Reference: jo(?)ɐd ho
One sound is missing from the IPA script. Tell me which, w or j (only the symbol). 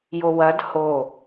w